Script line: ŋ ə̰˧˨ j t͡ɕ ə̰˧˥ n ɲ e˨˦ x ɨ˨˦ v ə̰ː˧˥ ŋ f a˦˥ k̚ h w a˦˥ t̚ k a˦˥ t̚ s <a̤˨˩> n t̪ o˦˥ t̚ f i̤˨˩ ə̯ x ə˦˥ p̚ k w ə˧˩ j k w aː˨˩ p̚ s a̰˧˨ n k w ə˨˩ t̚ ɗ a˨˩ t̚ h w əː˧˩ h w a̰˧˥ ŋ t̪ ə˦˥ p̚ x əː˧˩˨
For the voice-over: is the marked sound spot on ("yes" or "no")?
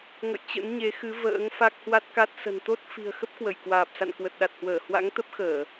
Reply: no